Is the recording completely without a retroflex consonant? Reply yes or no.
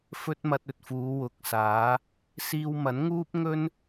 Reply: yes